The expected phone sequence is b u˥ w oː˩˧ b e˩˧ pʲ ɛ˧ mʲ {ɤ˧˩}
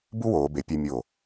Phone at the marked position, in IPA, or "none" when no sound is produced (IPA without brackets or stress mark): o˧˩